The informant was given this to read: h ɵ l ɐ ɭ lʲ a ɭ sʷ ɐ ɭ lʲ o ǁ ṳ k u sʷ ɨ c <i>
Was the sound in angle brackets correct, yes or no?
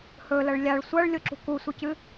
no